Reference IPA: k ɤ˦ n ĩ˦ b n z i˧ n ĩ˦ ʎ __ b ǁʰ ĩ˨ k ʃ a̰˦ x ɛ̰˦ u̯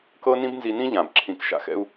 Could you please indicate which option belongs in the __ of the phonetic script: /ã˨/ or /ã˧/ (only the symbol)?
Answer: ã˨